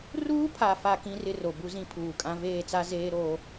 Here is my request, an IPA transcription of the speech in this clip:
r uː˦ pʰ a˨ f a˨ k ĩ˦ r ɪ˦ r o˨ b u˦ z ĩ˦ pʰ uː˨ kʼ ã˦ v eː˦˨ t͡s a˦ z eː˦ ɾ oː˦

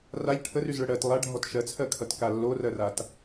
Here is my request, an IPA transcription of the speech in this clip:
r a ʎ ʈʰ ə r y z ɭ ə ɽ ɜ t lˠ a ɖʱ ɔ t ʃ ɜ t͡sʰ ɜ kʰ ʌ t k a lː o r ɜ r a t

